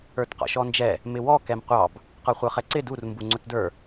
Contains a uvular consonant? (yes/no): yes